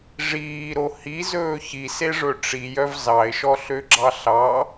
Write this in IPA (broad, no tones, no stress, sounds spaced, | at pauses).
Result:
ʐ iː ɾ o h i z ɵː ç i s e ʐ ɵ ʈ͡ʂ i j œ v z ɑ ɪ̯ ʃ ɔ ɬ ø ɡ͡ǁ ɑ ɬ ɑ